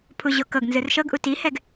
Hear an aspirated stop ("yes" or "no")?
yes